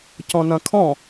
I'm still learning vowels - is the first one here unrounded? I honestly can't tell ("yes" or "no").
no